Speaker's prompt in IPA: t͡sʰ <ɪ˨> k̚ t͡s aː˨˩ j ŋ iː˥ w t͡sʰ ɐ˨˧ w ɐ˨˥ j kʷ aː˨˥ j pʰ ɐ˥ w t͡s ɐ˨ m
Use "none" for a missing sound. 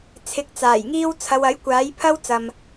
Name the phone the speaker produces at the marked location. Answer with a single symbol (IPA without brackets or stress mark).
ɪ˨˥